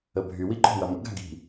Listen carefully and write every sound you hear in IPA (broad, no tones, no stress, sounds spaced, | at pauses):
ə bʱ y w i ǃ ɔ̤ w ɐ m ə̰ ɡ a̤ ɡ i̤